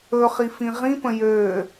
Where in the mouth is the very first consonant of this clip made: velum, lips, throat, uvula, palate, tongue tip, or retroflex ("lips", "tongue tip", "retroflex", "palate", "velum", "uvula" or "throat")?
uvula